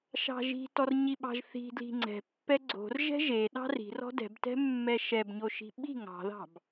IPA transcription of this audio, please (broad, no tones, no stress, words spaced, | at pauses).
ʃɑ̤ʒi̤tɔr ɲiɓɑ̤ʒθi̤dli̤ ŋ͡ǀɛ̤ pːɛɡ͡ǀo̤r ʒɛ̤ʒe ɗɑ̤ri̤rɔ̤ dɛ̤btɛ̤ mːɛʃɛbɲoʃi̤ ɓi̤ ŋɑ̤ðɑ̤b